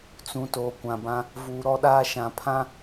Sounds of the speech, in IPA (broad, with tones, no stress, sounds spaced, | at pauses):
t͡s ũ˨ t oː˨ kʷ ã˨ b ã˦ | v uː˨ ɾ ɔ˦ ɗ aː˦ ʃ ã˨ pʰ ã˦